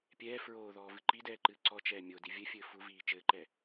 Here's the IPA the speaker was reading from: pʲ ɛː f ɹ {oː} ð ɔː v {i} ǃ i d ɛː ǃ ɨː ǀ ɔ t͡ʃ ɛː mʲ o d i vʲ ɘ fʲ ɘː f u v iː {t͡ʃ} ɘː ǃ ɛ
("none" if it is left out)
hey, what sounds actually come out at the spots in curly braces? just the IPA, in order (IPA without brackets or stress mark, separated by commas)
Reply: oː, ɨ, t͡ʃ